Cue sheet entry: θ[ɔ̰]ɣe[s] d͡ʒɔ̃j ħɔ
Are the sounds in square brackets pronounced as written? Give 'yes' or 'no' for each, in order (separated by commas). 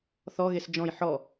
no, yes